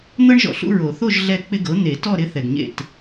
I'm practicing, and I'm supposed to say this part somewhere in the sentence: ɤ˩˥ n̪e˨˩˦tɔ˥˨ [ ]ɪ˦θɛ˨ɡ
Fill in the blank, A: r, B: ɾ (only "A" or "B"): B